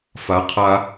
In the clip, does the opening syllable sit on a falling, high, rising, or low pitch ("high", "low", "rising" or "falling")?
rising